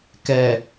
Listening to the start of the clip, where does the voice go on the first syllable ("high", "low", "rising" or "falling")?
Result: low